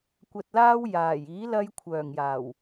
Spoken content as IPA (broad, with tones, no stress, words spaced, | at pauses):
kʷɐ˧t̚laː˥w jaː˨˩j iː˨˥lɐ˧j kʷʰœː˨˩ŋjaː˨˩w